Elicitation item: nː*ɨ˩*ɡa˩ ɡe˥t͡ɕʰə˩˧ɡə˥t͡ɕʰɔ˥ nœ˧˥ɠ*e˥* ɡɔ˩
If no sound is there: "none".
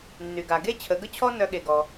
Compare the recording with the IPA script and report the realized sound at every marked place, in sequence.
y˩, e˩

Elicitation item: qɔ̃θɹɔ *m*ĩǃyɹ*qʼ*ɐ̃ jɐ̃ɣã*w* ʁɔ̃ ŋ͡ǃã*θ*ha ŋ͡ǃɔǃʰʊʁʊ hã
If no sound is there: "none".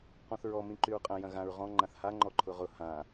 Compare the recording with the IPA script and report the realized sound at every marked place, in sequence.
m, qʼ, ɹ, θ

